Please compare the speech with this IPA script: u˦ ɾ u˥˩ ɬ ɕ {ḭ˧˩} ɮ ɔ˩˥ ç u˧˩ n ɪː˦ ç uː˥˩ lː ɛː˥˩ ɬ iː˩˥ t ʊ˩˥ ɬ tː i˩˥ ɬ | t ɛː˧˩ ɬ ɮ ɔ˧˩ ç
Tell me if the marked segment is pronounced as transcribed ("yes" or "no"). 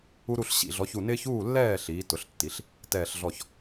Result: yes